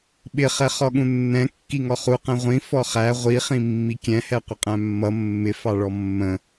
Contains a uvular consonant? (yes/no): yes